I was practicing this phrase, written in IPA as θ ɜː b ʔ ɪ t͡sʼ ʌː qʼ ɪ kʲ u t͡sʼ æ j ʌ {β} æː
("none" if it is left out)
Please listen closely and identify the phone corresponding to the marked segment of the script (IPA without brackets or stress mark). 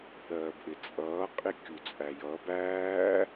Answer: b